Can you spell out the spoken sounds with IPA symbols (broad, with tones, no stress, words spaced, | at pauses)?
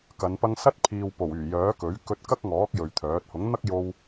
kɐ˨˧npɐ˥ŋ sɐ˥t̚ pʰiː˨w po˨˩wyː˨˩jœː˨˥kɵ˨˥ɥ kɵ˧t̚kɐ˥k̚ŋɔː˨˥k̚ jɵ˨ɥt̪ʰœː˨˥t̚ hʊ˨˥ŋn̪ɐ˥k̚jo˧w